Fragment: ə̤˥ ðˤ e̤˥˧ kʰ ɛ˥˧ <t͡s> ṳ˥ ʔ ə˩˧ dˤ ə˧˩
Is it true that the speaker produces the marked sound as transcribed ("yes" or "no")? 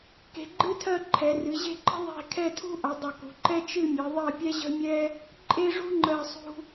no